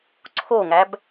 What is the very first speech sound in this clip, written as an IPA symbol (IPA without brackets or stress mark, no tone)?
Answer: ǀʰ